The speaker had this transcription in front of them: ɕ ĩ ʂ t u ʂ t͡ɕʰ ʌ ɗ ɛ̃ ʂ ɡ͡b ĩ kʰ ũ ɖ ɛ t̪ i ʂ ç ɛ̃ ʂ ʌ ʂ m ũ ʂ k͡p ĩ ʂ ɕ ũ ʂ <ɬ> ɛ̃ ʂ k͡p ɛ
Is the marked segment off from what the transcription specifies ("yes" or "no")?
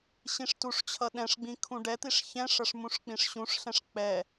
no